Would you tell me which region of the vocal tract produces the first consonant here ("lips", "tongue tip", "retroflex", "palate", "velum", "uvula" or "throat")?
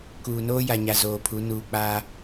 velum